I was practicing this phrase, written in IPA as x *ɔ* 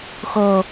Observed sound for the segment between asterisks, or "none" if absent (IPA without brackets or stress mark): ɤ